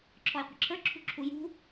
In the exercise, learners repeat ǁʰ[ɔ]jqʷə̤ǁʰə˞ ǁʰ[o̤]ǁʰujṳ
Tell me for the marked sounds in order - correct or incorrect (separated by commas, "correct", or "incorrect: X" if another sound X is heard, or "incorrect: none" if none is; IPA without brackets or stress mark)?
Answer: correct, incorrect: ṳ